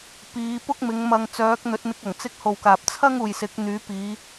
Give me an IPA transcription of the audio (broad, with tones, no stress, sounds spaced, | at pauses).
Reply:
p iː˨˧ p ʊ˥ k̚ m ɪ˨˧ ŋ m ɐ˧ ŋ t͡s œː˨˥ k̚ n̪ ɵ˨˥ t̚ n̪ ɪ˧ k̚ ɐ˨˩ ŋ t͡s ɪ˧ k̚ h o˨ w k aː˨ p̚ t͡sʰ ɐ˥ ŋ uː˨ j s ɪ˨˥ k̚ n̪ yː˨˥ p iː˨˧